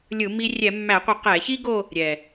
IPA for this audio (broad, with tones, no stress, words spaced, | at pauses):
lʲɯ˧˩˧ mi˧ rʲɛ˧˩˧mːæ˧˩˧qʷɯ˧˩˧ qɛ˧˩˧çi˥ ɡo˥˧ | ɾʲɛ˨˩